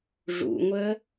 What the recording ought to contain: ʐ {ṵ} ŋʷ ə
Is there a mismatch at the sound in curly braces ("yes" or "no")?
no